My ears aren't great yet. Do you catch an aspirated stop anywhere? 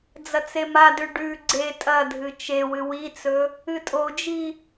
no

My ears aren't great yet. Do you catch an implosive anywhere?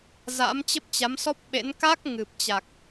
yes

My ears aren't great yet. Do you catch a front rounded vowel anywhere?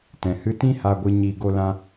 no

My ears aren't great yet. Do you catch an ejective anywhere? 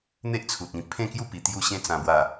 no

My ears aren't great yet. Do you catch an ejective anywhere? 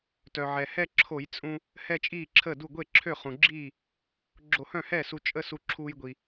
yes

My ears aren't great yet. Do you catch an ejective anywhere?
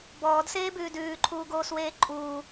yes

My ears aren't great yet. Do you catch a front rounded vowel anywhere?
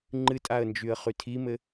yes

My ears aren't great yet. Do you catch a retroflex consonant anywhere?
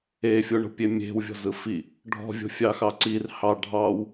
yes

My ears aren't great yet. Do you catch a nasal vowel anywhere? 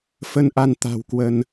no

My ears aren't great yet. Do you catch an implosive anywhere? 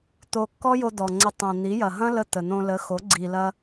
no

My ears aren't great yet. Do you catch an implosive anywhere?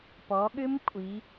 yes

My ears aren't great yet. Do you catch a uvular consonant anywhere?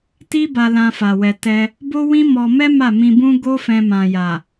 no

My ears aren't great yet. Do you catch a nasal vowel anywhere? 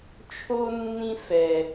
yes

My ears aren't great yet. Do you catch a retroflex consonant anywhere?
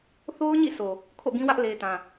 no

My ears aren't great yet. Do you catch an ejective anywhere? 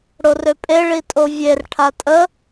yes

